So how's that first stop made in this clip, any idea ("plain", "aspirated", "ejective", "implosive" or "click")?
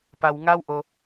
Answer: plain